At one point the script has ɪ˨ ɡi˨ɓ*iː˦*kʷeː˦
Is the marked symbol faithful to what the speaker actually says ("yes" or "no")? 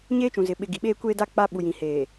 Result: no